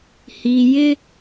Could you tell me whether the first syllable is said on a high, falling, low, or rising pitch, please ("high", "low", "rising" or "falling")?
low